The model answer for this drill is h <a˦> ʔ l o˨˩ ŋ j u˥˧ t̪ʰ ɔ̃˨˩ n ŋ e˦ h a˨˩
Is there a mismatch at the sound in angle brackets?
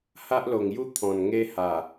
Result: no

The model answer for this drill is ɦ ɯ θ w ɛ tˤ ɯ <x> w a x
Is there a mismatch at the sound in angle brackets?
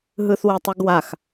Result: yes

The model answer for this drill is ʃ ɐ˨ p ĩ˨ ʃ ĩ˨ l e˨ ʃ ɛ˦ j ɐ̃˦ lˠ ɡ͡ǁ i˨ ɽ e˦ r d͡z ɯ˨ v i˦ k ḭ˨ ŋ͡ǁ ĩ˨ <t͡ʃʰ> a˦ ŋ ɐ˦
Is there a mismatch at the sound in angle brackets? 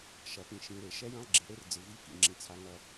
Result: yes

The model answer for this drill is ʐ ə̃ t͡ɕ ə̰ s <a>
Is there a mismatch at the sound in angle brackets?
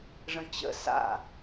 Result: yes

